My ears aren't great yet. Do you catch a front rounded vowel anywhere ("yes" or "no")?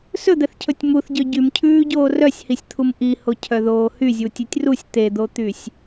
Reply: yes